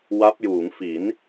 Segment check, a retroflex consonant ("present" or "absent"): absent